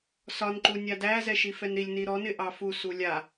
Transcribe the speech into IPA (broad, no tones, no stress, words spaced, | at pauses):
sɒnǃu nʲadæ zɛʃifɛnɾilʲ niɾɔnɪ ʔɑfu sulʲa